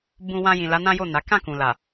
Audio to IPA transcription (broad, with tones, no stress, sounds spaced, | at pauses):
b ũ˨ w ã˧ j ĩ˨ l a˨˦ n ã˦ j o˦˨ n a˨˦ k ã˦˨ k ũ˨ l a˨